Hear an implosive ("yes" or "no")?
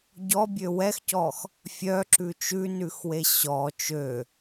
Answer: no